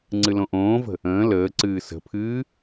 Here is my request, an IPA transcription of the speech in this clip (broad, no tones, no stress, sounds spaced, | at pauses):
ŋ͡ǀ ɨ l õ ʔ õː v ə̤ | ə̃ː l əː ǀ ɨː s ə̤ pʰ ɨː